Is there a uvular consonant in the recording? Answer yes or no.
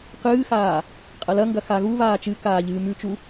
yes